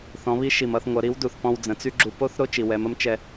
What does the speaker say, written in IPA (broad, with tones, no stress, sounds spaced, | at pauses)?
θ ɔ̃˩˧ β i˧˥ ʃ i˩ m ʌ˧ θ ŋʷ ʌ˩˧ ɾ i˧˥ w d u˩ θ p ɔ̃˧ w d͡z ə̃˩˧ t͡s y˥ ɡ͡ǁ u˧ p o˥ θ ɾ o˥ t͡ʃ i˩ w ɛ˩˧ m ə˧˥ m t͡ʃ ɛ˧